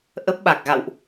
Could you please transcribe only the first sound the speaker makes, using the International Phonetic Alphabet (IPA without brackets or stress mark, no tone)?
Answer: ʔ